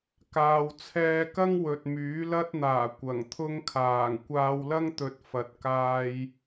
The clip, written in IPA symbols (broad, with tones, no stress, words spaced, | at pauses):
kaː˨wt͡sʰɛː˧kɐ˥ŋ wɵ˨t̚myː˨˥lɐ˥t̚n̪aː˨˩ kʷɐ˨˩ŋt̪ʰʊ˥ŋkʰaː˨˩ŋ kʷaː˧wlɐ˥ŋt̪ɵ˨˥t̚ fɐ˨t̚kaː˧j